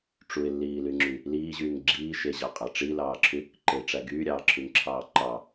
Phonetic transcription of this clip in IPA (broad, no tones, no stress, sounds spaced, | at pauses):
ʈ͡ʂ u ɪ̯ lː iː l y ŋ͡ǁ y | l iː ʑ yː ŋ ɡ͡ǁ iː ʃ e ʑ ɑ qʼ ɑ ʈ͡ʂ i l ɑː ǁʰ y | ǃ e ʈ͡ʂ æ ɡ yː ɾʲ ɑː ǁʰ y ŋ ǁʰ ɑː ǃ ɑ